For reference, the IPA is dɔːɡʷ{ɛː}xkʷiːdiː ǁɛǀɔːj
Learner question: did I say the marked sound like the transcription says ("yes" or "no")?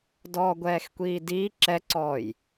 yes